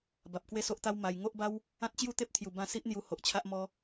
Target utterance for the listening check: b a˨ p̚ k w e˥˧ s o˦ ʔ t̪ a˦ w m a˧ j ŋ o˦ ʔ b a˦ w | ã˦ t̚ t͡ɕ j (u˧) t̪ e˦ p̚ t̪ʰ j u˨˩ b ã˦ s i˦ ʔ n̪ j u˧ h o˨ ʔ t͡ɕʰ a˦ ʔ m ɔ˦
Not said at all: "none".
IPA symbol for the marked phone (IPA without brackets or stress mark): u˥˧